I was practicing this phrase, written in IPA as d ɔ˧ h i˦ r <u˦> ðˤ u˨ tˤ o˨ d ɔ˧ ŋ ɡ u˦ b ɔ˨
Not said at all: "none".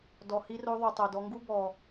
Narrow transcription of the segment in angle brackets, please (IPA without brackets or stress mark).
o˦